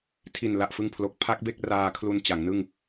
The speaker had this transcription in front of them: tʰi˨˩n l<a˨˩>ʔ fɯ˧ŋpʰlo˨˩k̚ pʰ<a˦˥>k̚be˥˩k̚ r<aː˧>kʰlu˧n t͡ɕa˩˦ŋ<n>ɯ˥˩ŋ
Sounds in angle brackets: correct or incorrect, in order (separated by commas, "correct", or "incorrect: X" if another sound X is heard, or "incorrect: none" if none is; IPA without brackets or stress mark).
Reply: correct, correct, correct, correct